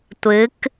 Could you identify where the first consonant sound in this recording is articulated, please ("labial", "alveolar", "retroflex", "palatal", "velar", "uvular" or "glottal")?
alveolar